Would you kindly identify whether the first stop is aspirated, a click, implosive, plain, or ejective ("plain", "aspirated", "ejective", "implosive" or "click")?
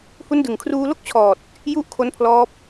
plain